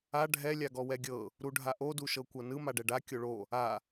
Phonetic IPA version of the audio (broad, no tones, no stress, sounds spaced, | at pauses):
a ɖʱ ɛ lʲ a ɡ ɔ w ɛ ɡʲ ɤ | ɾ u ɖʱ a ʔ o d u ʃ ɤ kʷ ɤ n ɯ m a ɖ ɛ ɖ a kʲ o ɭ o | a